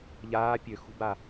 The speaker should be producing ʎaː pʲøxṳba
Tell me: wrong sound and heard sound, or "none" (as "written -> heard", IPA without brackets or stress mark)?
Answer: none